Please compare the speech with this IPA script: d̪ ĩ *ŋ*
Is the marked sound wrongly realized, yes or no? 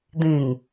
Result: no